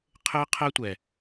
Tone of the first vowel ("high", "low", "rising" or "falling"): high